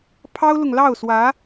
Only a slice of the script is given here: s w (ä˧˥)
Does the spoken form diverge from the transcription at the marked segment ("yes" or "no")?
no